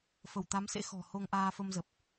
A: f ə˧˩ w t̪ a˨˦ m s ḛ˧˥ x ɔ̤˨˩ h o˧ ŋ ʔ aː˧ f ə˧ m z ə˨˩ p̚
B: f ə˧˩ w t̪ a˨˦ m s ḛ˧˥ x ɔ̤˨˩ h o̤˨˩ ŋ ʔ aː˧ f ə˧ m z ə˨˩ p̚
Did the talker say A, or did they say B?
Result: A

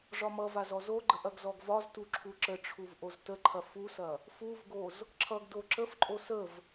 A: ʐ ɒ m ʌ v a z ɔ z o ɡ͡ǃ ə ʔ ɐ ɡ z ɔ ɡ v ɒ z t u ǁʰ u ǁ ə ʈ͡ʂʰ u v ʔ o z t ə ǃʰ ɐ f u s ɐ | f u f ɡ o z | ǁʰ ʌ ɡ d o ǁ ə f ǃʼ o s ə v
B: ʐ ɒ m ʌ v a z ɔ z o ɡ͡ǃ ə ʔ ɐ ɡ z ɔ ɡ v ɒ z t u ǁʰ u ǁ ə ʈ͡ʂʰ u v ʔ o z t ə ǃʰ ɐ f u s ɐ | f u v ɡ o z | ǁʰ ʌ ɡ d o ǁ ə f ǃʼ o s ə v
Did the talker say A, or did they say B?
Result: B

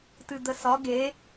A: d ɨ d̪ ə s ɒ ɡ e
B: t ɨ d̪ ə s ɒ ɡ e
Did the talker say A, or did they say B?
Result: B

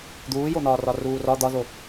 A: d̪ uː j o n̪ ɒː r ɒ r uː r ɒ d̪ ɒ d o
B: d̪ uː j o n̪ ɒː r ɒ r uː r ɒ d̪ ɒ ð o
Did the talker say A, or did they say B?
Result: B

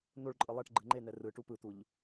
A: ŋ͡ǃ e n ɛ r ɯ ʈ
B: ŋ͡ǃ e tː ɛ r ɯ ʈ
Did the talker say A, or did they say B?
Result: A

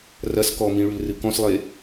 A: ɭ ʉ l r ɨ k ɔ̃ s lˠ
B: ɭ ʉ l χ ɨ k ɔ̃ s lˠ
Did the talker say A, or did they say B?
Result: A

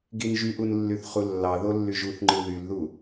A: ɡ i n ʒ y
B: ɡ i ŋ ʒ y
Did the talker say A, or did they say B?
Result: A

